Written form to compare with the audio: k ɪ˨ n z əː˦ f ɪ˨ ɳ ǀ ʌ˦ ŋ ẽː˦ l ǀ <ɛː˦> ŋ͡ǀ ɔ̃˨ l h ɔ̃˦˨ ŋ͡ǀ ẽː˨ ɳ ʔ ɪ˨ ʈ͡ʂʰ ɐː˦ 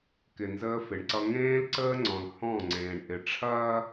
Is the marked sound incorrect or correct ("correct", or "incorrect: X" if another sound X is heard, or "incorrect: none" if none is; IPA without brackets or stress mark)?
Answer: incorrect: əː˦